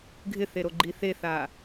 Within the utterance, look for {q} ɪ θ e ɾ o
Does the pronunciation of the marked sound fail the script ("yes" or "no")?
yes